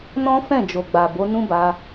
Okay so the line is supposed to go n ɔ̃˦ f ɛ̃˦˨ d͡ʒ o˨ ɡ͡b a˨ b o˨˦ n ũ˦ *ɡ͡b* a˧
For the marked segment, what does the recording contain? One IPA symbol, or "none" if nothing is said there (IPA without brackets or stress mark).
b